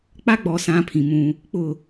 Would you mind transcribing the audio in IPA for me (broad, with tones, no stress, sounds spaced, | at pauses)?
k͡p a˦ ɡ͡b ɔ˨ s ã˦ pʰ ĩ˨ m ũ˦ | k͡p ʊ˦˨